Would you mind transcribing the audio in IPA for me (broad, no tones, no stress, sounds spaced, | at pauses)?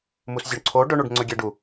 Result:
m u s zʲ o ɳ ǀʰ o ɖ ɵ ɳ u ɖ ŋ͡ǀ ɵ ɡʲ ɛ ɖ u